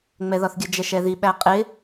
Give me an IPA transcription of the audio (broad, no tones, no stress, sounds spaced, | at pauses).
ŋ͡m ɛ ð ɒ θ ɡʲ ə d͡ʒ ɛ ʃ ɛ ð i ɓ æ qʼ ɪ